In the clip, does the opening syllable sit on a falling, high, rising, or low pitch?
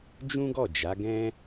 high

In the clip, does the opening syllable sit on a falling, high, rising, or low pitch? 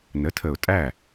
rising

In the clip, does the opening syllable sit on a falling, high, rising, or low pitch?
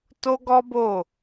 high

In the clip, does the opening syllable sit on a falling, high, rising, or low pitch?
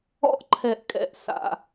high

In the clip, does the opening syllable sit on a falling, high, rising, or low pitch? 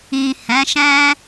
low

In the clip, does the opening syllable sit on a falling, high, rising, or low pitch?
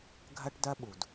high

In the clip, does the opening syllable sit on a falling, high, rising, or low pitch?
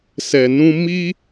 low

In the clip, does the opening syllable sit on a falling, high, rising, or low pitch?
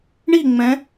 falling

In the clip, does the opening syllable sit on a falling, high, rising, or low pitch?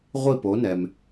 falling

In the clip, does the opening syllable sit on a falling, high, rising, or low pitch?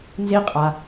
high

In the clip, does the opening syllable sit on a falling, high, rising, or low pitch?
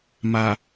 low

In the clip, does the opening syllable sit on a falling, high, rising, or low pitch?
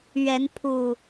rising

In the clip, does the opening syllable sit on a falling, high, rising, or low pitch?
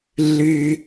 high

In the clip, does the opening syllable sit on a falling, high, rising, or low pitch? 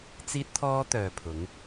high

